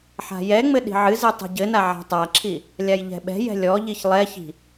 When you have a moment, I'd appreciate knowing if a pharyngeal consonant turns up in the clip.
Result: yes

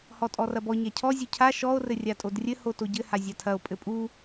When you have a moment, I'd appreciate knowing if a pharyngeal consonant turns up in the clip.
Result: no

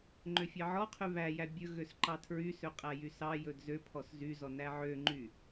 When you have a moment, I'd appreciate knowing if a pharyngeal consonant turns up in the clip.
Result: yes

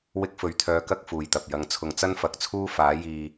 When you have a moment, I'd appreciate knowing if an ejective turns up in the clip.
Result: no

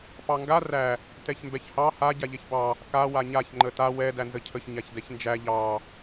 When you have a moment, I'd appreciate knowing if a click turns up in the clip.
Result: yes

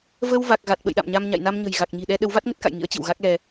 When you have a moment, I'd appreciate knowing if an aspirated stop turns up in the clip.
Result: no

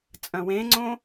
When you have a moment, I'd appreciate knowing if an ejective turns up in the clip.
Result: yes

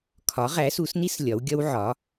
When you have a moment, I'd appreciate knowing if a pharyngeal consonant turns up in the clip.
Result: yes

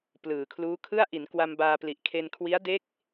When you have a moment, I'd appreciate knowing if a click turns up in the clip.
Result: no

